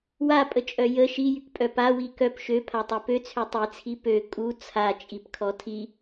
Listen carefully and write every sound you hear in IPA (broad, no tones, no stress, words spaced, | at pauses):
wapʼət͡ʃʼœ jə ʃijykpʼœ pawi kœp ʃøpʰatˤɛ pøt͡sʰø tˤit͡sʰi pø kʼu t͡sʰat͡ʃʼipkʰɔ tʰi